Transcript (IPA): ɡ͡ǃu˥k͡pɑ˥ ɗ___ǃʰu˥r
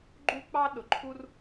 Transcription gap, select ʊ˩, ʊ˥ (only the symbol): ʊ˩